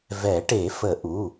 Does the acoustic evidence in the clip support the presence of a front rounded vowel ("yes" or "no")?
no